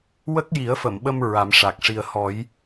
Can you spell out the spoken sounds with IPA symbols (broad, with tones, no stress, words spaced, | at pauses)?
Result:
wə˦˥k̚ji˨˩˦ə̯fə˨˩˨mɓə˧m ɹa˨˩˦mʂa˨˩k̚ ʂi˨˩ə̯ hɔ˨˩˦j